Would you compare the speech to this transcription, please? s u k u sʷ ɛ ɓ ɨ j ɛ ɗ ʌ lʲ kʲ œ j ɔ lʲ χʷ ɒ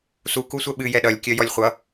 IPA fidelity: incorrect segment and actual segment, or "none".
ɒ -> ʌ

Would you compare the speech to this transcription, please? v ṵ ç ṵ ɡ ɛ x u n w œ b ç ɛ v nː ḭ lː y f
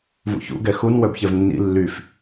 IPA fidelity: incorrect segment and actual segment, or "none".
none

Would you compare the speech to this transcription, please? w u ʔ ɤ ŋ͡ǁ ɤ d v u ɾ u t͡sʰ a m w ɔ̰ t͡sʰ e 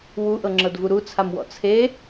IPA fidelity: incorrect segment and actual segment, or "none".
none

